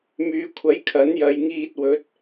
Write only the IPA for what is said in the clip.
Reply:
myː˨kʷʰɐ˨˥j kʰɐ˨˥njɐ˨˧jŋiː˧t̚ wɵ˨˥t̚

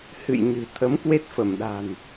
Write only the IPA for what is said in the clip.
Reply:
hɨ̰˧˨jɲɨ̤˨˩ t̪ʰə˨˦m kwe˦˥t̚fə˧˩mɗa̤˨˩n

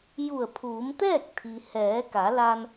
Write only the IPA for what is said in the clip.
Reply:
ju˧˩ə̯pʰuː˩˧mt̪ɛː˥˨k̚ t̪ʰi˩ hɛː˩˧ka˩˧la˧n

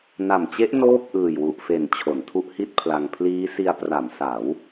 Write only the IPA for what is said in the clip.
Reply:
na˨˩mt͡ɕe˦˥ʔ noː˥˩p̚ʔɯː˨˩jwu˨˩ʔfe˨˩n t͡ɕʰo˩˦ntʰu˦˥ʔhi˥˩t̚pʰla˧ŋ pʰliː˦˥si˧a̯ pra˩˦msa˩˦w

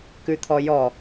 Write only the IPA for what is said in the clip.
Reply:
kʉt̪ʰɔjɔ

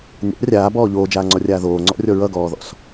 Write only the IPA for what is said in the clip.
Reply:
nʲa̰ rʲaːbɔː ʎoːd͡ʒaːŋ͡ǀɔrʲaː ðoːŋ͡ǀɔ̰rʲɔ ɹʌɡɔːðɔ̰s

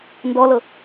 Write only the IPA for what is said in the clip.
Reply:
ndɔlɤ

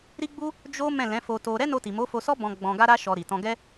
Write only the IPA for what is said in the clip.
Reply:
ɾi˦ɡ͡bu˦ | d͡ʒo˦ mɛ̃˦˨lɛ̃˨˦fo˧to˧ ɾɛ˦no˧ti˨ mo˨˦fo˧sɔ˦ bɔ̃˧ ɡ͡bɔ̃˧ ɡa˦ɾa˦ ʃɔ˧ɾi˨ tɔ̃˧ɡɛ˦

